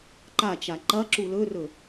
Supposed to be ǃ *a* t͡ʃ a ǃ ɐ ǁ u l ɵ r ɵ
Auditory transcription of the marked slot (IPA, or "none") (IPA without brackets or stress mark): a